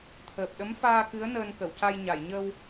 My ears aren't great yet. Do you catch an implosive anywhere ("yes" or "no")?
yes